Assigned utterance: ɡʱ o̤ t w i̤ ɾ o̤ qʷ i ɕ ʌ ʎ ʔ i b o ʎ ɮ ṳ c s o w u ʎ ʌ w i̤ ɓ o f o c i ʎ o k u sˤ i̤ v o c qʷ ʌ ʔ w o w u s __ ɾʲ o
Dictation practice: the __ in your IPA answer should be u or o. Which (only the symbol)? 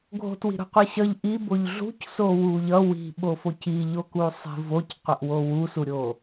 u